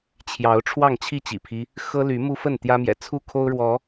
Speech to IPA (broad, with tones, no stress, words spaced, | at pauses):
t͡ɕʰjɑ˨˦ʊ̯ ʈ͡ʂʰwɑ˥˨ŋt͡ɕʰi˥˨t͡ɕḭ˨˩pʰi˦ | xɤ˦ly˨˦ mu˦fə˥˨n t̪jä˦mjɛ̰˨˩ t͡sʰu˥˨kʰo˦ʊ̯ɻwɔ˨˦